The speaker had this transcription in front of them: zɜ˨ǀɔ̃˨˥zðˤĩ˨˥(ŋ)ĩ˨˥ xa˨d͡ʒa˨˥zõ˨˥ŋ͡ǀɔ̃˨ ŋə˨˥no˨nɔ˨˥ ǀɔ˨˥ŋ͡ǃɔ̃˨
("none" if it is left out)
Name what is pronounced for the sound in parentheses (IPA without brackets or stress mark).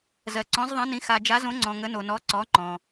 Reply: n